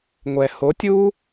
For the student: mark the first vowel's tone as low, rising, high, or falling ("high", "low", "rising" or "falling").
low